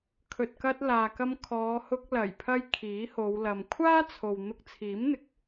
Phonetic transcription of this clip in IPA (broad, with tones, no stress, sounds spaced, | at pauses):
kʰ ɵ˨ t̚ k ɐ˧ t̚ l aː˨ k ɐ˧ m kʰ ɔː˨˧ h ʊ˧ k̚ l ɐ˨˩ j pʰ ɐ˧ j kʰ iː˨˥ h o˨˧ w l ɐ˨ m kʷʰ aː˥ t͡sʰ o˨ w n̪ ʊ˧ k̚ t͡sʰ iː˨˥ m n̪ ɪ˨ k̚